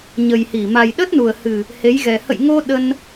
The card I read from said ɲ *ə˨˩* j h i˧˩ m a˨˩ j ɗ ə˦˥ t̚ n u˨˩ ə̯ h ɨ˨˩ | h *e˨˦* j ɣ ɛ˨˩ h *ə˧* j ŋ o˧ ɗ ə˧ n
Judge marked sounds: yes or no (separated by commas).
yes, yes, no